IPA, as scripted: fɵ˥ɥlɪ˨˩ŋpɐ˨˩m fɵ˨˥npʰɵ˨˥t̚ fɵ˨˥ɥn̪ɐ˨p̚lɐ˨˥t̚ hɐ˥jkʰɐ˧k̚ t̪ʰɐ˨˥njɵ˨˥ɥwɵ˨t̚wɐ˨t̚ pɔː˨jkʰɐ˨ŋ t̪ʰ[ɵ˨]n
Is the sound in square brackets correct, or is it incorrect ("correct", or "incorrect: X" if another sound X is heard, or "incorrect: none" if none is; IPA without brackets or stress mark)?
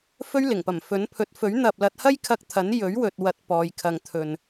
correct